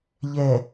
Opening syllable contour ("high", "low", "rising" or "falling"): low